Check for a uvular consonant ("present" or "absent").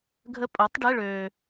absent